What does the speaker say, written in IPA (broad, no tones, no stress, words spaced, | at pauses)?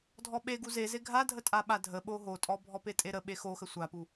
dʱɔɓe ɡuzeze ɡʱadʱətʼaɓa dʱəɓo ɦotʼɔ bʱɔpetʼeɾə ɓexoxə sʷapu